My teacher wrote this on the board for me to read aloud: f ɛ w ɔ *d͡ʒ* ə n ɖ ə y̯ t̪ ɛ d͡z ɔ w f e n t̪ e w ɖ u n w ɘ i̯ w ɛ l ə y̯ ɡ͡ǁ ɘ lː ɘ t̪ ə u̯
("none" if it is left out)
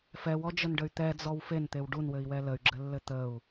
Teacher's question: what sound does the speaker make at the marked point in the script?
d͡ʒ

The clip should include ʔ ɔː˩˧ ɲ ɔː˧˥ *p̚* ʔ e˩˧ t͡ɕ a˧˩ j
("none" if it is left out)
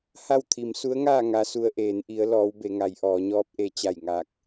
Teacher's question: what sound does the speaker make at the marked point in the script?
p̚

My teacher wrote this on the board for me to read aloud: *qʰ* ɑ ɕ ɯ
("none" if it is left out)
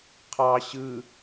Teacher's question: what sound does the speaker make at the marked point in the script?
qʰ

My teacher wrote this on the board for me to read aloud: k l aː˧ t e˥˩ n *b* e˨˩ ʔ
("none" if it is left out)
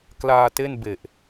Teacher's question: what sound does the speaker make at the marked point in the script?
b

